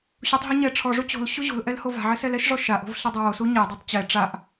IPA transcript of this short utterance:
ɕ u tˤ ɦ u ɲ ɛ ʈ͡ʂʰ ɔ ʐ u t͡ɕ o̤ l ɕ u ʑ o̤ l ʔ ɛ l h o v a̤ ʕ ɪ s ɛ l ɛ ʃ ʐ ɔ ʃ a ʔ o̤ v ɬ e dˤ ɛ w o s u ɲ e dˤ u tˤ t͡ɕ ɛ ʈ͡ʂ a ʔ

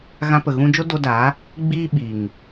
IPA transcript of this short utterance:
ɣ ã˧ p ə˨ ɣ ũ˧ d͡ʒ o˦ d o˧ d aː˨˦ | ɡ͡b iː˦ ɓ iː˨ ŋ

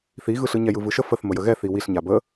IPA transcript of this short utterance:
θ i ɣ ɯ ɬ ɯ ɲ ɛ j ɯ v ɯ ʃ ə f ə θ m ə j ə ɣ ɛ θ i w i ɬ ɲ a b ə

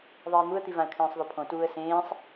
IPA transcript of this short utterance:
ðˤ iː n̪ u ə̯ t̪ i v ã ə̯ kʰ ẽː sˤ ðˤ o pʰ õ t uː ə̯ s ẽː sˤ

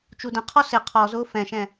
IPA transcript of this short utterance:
t͡ʃ u d ə̃ qʰ ɔ s ɪ qʰ ɔ z ʊː f ɛ̃ ʃ ɛ̃

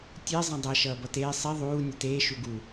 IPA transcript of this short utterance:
tʲ e zˤ ẽ dˤ ʌ ʃ ʌː b ʌ t eː sˤ i ðˤ uː nʲ ʌ t eː ʃ u ɡ u

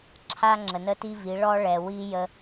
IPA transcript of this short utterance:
ǁʰ a˦ ŋ͡ǁ ə˨ n ə˦ t i˦ v i˨˦ ɭ ɔ˦ ɭ ɛ˨ w i˦ j ə˦

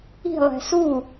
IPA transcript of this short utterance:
i̤ lˠ ɛ̤ s u

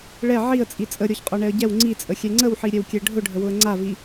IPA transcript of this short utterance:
ɭ ɛ ʕ i ə̯ t͡sʼ i t͡sʼ ə ɾʲ ɔ ç qʼ ɔ ɳ ɛ ə̯ ɟ ɛ w ŋ͡ǀ i t͡sʼ ə xʲ ɛ ŋ͡ǀ ə w ħ i ɾʲ ɛ w kʲ ɛ ɖʱ ʊ ɖʱ ə w ʊ ə̯ ŋ͡ǀ a v i

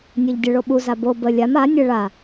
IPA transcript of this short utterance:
nʲ e ʎ dʲ ə ɭ o ɓ u z a b o b ə lʲ a m a nʲ ə ɭ a

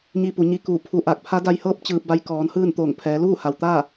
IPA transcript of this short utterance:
ɲ i˧ p u˩˧ ɲ i˧ k uː˧˩ pʰ u˧ ʔ aː˧˩ k̚ pʰ a˧˥ d a˧ j h ɤː˥˨ p̚ t͡ɕ ɯː˧ p̚ b a˧˥ j k ɔː˩˧ n h ɯː˥˨ n t̪ oː˧˩ ŋ pʰ ɛː˩˧ l uː˥˨ h a˩ w t̪ aː˥˨

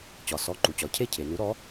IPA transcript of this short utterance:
t͡ɕ ɒ˩ s ɔ˩˧˩ ǃ u˩ t͡ɕ ɒ˩ cʰ e˥˩ cʰ e˩ n u˨˥ ɾ ɔ˨˥

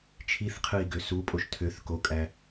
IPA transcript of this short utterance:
t͡ʃʰ i θ qʰ ɯ i̯ ɡ ø s u pʼ o ʃ tʰ ø θ k o kʼ æ

